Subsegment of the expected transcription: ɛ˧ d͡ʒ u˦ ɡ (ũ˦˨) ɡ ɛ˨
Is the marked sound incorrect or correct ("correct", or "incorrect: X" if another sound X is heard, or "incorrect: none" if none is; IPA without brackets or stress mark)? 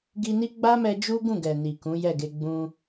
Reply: correct